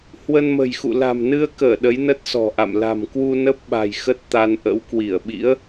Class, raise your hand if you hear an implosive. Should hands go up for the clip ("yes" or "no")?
yes